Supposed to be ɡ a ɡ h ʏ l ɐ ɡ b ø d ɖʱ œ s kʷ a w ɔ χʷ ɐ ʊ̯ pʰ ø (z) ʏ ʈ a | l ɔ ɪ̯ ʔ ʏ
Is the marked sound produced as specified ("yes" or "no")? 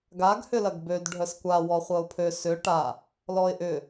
no